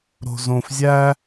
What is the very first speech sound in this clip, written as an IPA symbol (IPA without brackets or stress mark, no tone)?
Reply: ɾ